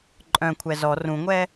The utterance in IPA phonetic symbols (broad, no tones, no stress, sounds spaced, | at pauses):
ǃʼ œ̃ kʷʰ ɛ z ɔ r ũ ŋʷ ɛ